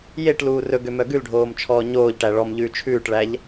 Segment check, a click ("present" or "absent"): absent